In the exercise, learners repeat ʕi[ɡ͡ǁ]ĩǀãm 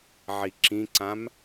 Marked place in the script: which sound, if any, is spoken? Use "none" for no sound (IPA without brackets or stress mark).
ǁ